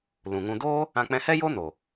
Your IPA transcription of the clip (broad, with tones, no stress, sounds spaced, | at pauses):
l ũ˨ ŋ ũ˧ d oː˦ | ã˧ k͡p ɛ̃˧ h ɛ˦ j o˦ n o˨